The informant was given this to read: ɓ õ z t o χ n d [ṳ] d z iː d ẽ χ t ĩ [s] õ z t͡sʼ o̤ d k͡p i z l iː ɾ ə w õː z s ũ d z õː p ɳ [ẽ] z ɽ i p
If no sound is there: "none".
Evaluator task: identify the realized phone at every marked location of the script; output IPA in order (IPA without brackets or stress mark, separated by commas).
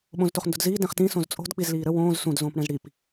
ṳ, s, ɛ̃